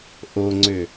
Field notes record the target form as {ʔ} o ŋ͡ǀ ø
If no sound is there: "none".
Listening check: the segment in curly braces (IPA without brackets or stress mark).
ʔ